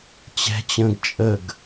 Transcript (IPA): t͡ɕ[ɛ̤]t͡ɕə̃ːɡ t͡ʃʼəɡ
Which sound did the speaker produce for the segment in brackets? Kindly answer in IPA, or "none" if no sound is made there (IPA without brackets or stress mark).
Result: ɛ̤